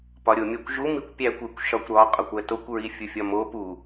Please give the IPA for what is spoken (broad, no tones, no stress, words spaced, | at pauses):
pɒɾʲomʲækʷʒu mikʷpʲækʷekʷ ʃɒkʷɾɒ qʼɒkʷætokʷ ɹifʲufʲɒmo pu